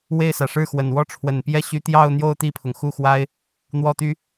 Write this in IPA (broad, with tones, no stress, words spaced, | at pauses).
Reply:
we˥˩ɪ̯sä˨˩ʂɻ̩˥˩xwə˨˩n wɔ˥˩ʈ͡ʂʰwə˨˩npjɛ˥ɕy˧˥ t̪jɑ˥˧ʊ̯n̪jo˥˧ʊ̯ t̪i˥˩pʰʊ˩ŋxu˥˩xwa˥ɪ̯ | n̪wɔ˥˩t̪y˥